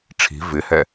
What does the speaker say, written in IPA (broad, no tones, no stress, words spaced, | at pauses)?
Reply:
ʈ͡ʂʰi̤ vɪhɛ